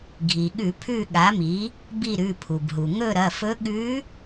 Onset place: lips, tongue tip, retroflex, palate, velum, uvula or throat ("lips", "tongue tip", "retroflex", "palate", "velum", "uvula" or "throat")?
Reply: velum